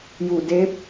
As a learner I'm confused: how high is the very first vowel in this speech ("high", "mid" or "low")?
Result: high